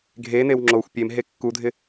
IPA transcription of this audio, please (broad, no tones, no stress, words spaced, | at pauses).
ɡʱenew ŋ͡ǁoxʷ pʲemɦe kːudʱɪ